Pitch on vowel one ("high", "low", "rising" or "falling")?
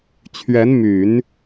rising